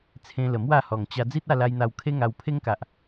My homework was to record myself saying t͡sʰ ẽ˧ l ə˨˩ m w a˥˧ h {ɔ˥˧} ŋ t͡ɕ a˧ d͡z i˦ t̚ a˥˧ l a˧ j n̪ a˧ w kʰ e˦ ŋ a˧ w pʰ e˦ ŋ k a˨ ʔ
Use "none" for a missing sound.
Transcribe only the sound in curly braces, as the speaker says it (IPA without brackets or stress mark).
ɔ˨˩